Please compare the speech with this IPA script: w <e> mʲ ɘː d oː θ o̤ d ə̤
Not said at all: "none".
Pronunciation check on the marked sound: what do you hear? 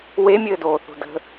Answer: e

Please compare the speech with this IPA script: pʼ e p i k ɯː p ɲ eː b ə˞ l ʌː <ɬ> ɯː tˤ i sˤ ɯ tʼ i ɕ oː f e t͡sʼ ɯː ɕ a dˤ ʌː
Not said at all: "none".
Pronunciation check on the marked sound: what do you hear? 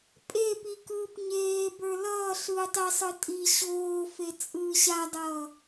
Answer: ɬ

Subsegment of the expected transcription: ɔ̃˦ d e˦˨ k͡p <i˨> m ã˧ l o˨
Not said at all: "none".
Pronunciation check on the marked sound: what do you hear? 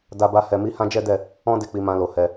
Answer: i˧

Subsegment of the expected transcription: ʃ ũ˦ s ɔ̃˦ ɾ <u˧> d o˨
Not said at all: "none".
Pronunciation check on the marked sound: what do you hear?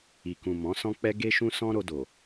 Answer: o˧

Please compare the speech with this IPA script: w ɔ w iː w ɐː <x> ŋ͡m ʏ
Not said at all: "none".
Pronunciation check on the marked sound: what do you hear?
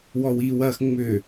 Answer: x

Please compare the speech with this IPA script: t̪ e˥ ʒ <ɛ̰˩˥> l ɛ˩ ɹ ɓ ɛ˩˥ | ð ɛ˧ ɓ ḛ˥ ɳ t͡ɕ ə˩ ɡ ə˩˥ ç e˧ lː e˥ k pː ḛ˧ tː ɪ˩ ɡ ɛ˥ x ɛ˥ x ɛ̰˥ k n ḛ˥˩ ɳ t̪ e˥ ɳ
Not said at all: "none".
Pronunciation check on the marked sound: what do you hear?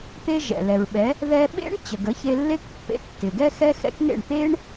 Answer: ɛ̰˩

